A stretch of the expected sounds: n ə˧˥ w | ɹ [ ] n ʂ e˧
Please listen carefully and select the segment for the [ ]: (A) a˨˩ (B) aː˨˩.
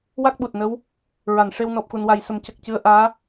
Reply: A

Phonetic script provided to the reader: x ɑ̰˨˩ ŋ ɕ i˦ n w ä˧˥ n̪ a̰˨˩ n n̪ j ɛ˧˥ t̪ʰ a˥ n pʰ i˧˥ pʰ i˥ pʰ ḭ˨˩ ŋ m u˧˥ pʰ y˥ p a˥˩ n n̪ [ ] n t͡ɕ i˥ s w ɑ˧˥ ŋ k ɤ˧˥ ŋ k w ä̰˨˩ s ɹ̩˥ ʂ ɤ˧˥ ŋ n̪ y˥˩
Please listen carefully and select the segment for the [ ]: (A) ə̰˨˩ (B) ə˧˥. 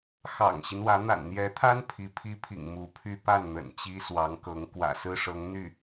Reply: A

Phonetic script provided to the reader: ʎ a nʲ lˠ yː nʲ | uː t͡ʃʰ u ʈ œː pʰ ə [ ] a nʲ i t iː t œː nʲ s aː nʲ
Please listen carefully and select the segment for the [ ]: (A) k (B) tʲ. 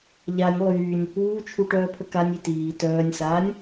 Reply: A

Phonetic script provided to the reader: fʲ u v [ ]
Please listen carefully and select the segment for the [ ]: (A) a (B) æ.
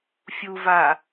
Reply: A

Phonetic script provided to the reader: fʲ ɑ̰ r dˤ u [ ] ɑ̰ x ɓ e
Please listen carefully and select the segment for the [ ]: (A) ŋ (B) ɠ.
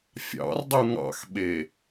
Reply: A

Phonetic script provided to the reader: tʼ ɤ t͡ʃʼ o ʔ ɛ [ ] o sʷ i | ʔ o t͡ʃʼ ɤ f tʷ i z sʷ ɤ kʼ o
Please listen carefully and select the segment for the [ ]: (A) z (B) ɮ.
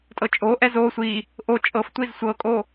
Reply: A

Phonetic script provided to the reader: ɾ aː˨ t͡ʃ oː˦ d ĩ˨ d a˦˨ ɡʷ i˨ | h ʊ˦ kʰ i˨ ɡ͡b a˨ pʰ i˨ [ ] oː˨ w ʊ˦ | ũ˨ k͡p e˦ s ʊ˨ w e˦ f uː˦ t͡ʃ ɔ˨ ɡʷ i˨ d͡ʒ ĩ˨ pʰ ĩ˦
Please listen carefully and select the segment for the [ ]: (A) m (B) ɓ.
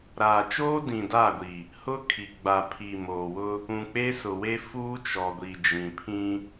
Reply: A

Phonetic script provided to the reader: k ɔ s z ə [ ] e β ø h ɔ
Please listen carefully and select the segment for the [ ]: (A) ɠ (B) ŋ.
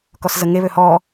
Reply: B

